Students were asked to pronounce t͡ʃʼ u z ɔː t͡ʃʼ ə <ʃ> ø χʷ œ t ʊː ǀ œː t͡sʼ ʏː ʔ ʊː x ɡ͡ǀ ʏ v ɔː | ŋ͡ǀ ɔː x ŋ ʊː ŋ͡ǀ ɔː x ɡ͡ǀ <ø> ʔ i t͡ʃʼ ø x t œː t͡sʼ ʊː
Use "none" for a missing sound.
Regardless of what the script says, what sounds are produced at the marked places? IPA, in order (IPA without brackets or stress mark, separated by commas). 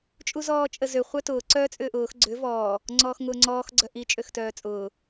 z, œ